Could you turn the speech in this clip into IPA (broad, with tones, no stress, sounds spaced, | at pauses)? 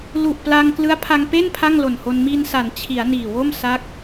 l u˨˩ ʔ p l a˧ ŋ k l ɯ˦˥ a̯ pʰ a˧ ŋ p e˥˩ n pʰ a˥˩ ŋ l o˨˩ n h o˧ n m i˧ n s a˩˦ n t͡ɕʰ i˩˦ a̯ n iː˨˩ w o˥˩ m s a˦˥ k̚